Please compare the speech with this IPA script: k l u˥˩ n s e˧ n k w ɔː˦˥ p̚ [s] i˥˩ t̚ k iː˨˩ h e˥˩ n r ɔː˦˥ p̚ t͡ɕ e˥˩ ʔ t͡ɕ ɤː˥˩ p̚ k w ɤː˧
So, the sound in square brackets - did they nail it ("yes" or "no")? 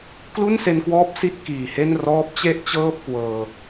yes